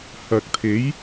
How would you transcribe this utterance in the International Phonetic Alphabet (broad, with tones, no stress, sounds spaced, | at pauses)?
h ɐ˨ k̚ t̪ʰ e˨˥ j